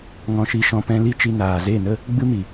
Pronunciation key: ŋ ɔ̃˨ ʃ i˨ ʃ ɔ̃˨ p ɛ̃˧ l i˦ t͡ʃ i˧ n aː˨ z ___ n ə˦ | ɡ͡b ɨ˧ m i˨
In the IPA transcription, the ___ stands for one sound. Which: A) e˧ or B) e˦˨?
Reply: B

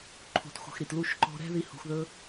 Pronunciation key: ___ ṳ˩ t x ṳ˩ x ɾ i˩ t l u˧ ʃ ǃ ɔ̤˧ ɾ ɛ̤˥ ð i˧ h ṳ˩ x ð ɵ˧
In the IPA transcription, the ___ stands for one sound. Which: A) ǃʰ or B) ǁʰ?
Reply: A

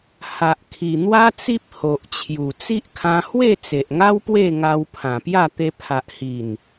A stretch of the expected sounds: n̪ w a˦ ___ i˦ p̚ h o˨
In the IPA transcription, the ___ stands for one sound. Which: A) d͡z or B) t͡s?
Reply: B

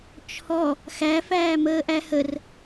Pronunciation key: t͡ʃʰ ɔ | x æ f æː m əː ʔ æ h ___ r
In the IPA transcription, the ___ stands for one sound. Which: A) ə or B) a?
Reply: A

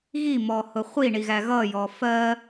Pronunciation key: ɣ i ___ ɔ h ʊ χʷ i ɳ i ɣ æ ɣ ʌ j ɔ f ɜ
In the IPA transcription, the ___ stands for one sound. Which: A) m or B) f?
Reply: A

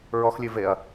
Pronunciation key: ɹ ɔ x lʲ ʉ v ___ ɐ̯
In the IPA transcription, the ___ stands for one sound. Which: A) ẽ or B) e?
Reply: B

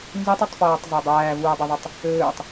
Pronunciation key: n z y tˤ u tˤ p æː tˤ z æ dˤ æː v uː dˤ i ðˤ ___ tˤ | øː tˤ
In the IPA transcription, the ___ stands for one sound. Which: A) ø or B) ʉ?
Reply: A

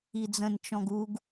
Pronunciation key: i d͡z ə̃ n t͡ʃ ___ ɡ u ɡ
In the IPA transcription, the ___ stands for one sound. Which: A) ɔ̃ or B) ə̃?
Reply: A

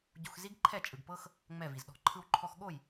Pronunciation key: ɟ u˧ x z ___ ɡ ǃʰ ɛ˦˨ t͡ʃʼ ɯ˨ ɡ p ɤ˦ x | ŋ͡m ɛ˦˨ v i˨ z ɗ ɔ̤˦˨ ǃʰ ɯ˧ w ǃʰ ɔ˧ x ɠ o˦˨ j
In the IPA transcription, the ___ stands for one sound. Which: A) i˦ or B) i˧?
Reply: A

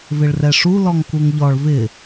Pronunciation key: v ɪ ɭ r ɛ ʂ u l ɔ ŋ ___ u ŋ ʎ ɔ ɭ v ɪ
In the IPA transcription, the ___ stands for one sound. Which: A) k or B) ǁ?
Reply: A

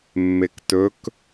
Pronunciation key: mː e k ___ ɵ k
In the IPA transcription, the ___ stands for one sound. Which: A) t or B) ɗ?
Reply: A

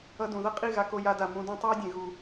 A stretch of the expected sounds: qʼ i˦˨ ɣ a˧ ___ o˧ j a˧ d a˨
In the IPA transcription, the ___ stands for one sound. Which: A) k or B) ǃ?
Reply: A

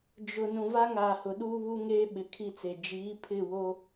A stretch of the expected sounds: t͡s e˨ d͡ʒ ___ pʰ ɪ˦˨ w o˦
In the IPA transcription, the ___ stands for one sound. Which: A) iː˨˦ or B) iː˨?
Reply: A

